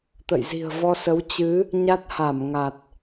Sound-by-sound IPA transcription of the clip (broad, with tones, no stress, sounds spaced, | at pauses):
t̪ ə̰˧˨ j z i̤˨˩ ə̯ v ɔ˧ s ə˨˦ w t͡ɕ ɨ˨˦ | ɲ a˦˥ t̚ h a˧˩ m ŋ a˨˩ t̚